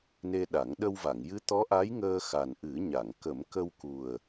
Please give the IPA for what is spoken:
ne˧ɗa˨˩˦ŋ ɗə˧wva˨˩˨ŋjɨ˧˥ t̪ɔ˧˥ʔa˧˥jŋəː˧ xa˨˩nʔɨ˨˩˦ ɲa˨˩˨ŋ kə˨˩˦mkə˧w ku˨˩ə̯

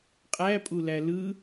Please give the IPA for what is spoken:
qʼæpʼulæ lɯ

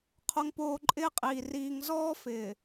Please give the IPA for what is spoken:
qʰo˨ŋpoː˨ ǃʼɪː˦qʼiː˨ riː˨ŋ zɔː˦fɪː˨

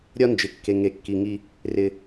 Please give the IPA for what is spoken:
ɾʲɒ˦nd͡ʒɪ˨kːe˨ ŋe˨kːi˨ŋi˧ | rɪ˨

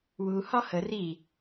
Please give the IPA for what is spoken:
wu hɒhə ri

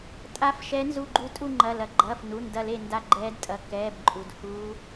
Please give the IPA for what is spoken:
tʼa˧˥fʃɛ˧˥nzu˦˨ɡ͡ǃu˦˨ tʼu˦˨ŋ͡ǃɐ˩˧˩ lɐ˩ɡ͡ǃɐː˩˧˩f nu˩˧˩ndɐ˦˨le˦˨ nda˦˨ɡ͡ǃɛː˧˥dtʼɐ˩˧˩ kɛː˩˧˩bǃʼu˩d huː˧˥

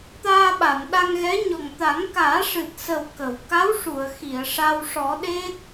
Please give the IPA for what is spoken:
t̪aː˧ɓa˨˩˨n ɗa˧ŋɣɛ˧˥ɲɔ˨˩ŋ t̪a˨˩˦ŋkaː˨˩˦ʂɨ˨˩t̚ sə˨˩w kə˨˩˨w ka˧˥wʂu˨˩˨ə̯ xi˨˩˨ə̯ ʂa˧w ʂɔ˨˩˦ɗe˦˥t̚

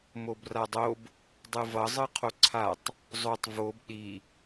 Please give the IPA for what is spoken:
mobradˤob | dˤɯvʌ zˤɯqʰoǀʰatˤ | zˤotˤ vob ɗi

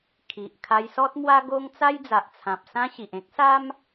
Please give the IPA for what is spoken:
kʰi˨ʔ kʰa˧jsɔ˦t̚mwa˦ ɡo˦ŋ t͡sa˦jd͡za˨ʔt͡sʰã˨p̚ sã˦ɕi˨ʔ ẽ˦k̚sa˦m

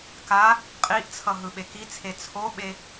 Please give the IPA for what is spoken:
ka | qʼiʔt͡sʰʌ ɦɯɓekit͡sʰe t͡sʰoɓe

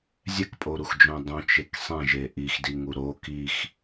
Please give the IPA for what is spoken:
zʲɛkpʼoɾuxd͡ʒõ dˤõt͡ʃek sˤẽʒe ʔixdiŋu ɾo kix

